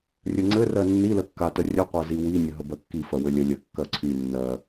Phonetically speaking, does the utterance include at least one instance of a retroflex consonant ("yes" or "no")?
no